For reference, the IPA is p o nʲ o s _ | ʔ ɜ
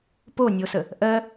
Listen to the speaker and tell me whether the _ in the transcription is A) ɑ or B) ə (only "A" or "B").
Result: B